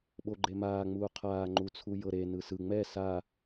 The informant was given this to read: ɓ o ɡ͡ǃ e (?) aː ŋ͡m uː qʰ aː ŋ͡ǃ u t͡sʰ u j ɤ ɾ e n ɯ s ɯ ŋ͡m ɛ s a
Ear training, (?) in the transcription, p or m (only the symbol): m